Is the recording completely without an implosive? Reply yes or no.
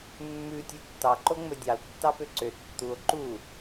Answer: yes